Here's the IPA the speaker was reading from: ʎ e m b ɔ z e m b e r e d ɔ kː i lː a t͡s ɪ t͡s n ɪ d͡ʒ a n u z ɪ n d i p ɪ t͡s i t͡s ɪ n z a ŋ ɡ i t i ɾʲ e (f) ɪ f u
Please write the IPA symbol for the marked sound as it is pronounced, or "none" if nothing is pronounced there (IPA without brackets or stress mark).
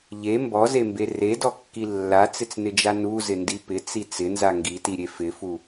f